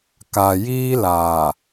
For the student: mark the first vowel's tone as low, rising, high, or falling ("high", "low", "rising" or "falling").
low